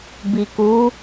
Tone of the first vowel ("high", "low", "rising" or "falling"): low